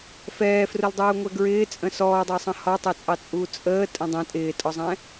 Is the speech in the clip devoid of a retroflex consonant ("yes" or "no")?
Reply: yes